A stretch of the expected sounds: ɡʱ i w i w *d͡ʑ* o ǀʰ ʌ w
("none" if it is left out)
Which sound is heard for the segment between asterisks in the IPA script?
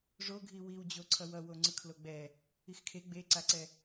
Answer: d͡ʑ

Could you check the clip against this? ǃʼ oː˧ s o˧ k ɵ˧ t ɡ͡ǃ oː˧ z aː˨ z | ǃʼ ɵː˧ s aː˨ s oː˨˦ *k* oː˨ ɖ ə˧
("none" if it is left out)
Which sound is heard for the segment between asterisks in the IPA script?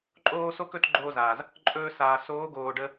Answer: ɡ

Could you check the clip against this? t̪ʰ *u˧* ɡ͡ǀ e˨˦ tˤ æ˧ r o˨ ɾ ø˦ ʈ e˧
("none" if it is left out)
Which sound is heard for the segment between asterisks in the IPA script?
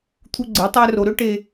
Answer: u˧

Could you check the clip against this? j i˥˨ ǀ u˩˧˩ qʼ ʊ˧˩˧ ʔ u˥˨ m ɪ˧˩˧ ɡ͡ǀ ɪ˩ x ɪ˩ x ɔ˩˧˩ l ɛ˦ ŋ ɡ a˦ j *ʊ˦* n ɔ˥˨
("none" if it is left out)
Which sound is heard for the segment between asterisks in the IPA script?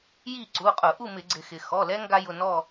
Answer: ʊ˩˧˩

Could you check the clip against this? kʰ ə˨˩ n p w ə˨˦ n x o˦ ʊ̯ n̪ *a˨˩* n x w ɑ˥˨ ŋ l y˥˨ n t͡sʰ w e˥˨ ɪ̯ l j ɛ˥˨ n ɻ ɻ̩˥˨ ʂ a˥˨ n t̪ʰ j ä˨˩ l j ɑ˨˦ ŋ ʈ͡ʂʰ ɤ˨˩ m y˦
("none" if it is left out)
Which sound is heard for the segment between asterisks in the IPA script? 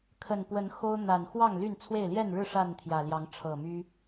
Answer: a˨˩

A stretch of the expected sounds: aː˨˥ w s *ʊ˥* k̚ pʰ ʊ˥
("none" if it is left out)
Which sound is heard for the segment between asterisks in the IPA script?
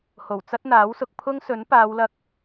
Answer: ʊ˨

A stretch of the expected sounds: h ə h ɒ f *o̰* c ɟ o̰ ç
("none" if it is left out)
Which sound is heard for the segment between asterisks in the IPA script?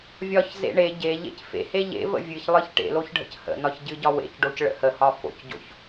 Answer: o̰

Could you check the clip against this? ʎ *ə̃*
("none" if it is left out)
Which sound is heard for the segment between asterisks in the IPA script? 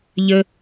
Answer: ə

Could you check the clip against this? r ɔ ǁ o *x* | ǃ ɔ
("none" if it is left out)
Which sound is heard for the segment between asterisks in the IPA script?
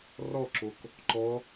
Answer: k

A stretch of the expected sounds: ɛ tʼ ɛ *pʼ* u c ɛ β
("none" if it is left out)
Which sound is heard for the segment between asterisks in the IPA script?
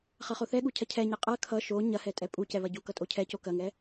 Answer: pʼ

